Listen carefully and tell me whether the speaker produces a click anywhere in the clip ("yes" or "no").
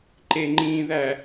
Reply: yes